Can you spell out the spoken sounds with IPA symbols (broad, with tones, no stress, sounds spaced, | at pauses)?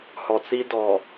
h ɔ˨ t͡s i˦ d ɔ˨